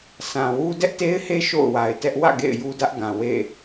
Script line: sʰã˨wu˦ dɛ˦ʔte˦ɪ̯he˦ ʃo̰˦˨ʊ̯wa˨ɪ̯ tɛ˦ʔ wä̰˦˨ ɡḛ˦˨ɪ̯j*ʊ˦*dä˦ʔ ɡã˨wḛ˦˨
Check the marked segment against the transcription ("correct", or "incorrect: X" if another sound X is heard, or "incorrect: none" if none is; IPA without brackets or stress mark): incorrect: u˦